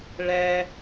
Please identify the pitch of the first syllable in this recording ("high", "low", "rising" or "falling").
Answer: high